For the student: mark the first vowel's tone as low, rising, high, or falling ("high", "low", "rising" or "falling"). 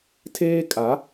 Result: high